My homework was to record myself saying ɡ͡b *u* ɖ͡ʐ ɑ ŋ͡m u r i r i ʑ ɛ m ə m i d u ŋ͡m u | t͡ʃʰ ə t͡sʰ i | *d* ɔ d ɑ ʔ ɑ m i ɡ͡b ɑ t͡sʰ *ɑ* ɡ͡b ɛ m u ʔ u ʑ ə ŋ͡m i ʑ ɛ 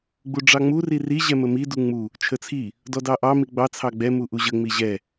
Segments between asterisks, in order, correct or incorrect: correct, correct, correct

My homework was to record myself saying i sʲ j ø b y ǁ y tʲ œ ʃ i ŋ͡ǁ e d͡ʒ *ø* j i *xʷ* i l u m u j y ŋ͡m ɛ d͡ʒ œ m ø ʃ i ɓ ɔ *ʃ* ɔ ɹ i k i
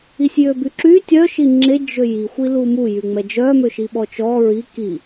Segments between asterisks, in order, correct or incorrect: correct, correct, incorrect

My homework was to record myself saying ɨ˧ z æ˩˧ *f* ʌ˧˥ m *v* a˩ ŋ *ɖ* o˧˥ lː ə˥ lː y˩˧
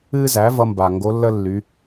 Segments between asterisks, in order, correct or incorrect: incorrect, incorrect, incorrect

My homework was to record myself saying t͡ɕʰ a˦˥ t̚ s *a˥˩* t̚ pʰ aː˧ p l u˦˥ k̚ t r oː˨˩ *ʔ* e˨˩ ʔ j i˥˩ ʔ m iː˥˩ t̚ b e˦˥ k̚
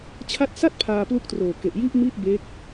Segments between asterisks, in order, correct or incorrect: correct, incorrect

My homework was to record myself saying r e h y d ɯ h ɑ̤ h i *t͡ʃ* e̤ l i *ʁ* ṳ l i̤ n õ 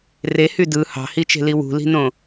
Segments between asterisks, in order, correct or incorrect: correct, incorrect

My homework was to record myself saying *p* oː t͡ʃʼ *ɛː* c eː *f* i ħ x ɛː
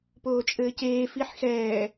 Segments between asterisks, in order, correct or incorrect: correct, incorrect, correct

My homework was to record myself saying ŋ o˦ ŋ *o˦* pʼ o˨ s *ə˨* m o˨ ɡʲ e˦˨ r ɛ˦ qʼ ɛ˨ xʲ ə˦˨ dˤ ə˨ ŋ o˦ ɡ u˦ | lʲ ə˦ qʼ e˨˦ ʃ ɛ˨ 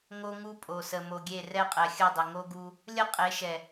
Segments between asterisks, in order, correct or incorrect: incorrect, correct

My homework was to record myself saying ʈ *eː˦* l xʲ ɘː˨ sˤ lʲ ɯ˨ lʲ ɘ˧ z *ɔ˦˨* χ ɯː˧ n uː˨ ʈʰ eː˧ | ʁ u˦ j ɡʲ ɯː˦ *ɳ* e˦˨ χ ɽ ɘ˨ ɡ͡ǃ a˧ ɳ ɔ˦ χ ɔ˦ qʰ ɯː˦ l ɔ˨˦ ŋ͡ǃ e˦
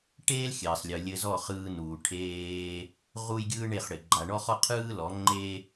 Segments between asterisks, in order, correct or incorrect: correct, correct, correct

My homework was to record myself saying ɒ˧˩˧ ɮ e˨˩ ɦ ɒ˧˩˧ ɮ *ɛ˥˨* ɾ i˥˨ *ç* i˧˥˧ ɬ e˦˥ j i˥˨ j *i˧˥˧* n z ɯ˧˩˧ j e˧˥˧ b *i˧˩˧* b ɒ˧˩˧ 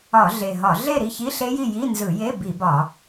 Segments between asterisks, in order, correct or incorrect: incorrect, correct, correct, correct

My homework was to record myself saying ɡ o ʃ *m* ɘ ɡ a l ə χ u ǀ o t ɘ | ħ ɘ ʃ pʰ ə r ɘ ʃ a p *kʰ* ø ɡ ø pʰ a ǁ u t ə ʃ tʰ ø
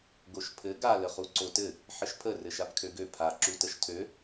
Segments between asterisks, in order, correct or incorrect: incorrect, correct

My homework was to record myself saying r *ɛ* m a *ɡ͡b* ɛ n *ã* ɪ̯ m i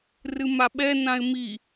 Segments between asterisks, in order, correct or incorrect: incorrect, incorrect, correct

